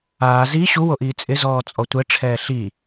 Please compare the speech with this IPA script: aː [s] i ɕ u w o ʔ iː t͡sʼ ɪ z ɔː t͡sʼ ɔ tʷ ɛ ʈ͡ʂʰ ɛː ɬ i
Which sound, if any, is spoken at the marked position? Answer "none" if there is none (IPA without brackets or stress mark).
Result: z